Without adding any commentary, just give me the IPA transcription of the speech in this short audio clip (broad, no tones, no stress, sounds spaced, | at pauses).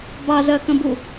b ɑ z ɜ k ə̃ b u